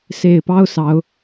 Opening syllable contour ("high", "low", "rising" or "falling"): low